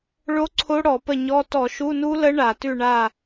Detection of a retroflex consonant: present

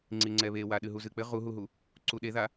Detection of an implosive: present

